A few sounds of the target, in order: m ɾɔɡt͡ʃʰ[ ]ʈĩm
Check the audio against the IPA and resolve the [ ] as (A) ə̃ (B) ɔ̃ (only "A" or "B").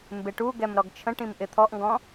A